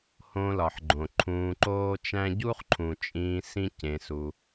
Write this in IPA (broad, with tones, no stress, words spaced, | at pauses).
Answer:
hõ˧lɒ˨ħɡ͡ǃõ˨ ǃʰũː˧ǃoː˦t͡ʃæ̃˦ ɟu˦χǃʰũ˨t͡ʃʼĩː˧ sĩ˦cẽ˧su˧